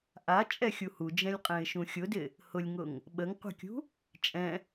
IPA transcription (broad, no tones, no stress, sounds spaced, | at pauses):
ʔ a t͡ʃʼ ɛ xʲ u h u d͡ʒ ɛ̃ lʲ qʼ ɛ̃ ɪ̯ ʃ ũ xʲ ʊ d ɪ | h ʊ lʲ ŋ ʊ ŋ | ɓ ə ŋ qʷ ə̤ kʲ ṳ | t͡ʃʼ ɛ̃